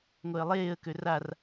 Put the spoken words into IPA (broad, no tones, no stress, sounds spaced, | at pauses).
ŋʷ ɛ ə̯ lˠ eː ə̯ k ø r a r